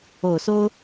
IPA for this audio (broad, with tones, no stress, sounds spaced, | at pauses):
o˨˩ ʊ̯ s o˥ ʊ̯